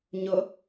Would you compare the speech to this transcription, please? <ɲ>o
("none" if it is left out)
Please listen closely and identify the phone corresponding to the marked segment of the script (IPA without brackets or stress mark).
ɲ